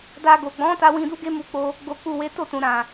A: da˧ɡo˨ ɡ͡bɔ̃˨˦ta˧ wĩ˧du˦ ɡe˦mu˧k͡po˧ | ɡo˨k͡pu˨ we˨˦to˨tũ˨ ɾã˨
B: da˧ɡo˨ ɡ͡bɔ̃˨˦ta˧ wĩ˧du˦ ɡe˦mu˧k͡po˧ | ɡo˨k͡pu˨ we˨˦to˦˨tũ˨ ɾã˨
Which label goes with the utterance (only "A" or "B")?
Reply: B